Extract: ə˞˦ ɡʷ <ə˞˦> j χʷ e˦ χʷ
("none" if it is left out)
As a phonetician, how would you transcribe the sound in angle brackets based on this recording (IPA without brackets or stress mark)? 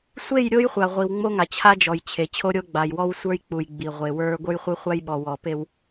ə˞˦